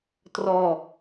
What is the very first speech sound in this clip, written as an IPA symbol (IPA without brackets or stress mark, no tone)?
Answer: t